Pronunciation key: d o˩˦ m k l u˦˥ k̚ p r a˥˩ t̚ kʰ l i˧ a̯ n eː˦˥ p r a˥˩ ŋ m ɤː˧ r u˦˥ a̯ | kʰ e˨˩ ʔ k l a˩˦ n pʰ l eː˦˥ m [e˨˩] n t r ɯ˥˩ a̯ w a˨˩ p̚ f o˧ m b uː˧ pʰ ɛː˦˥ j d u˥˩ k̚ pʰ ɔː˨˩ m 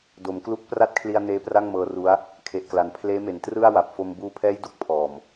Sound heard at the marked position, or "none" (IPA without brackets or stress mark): e˨˩